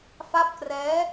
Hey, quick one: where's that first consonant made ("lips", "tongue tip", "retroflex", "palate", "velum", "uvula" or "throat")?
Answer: lips